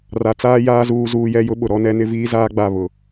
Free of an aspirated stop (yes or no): yes